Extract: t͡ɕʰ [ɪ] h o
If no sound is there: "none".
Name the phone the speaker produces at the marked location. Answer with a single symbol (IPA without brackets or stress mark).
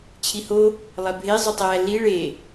i